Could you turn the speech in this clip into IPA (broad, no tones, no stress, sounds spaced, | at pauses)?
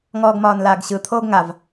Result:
ŋ ɔː ɡ m ɒː n l aː ɡ ɕ ɯ t̪ʰ oː ɡ ŋ a v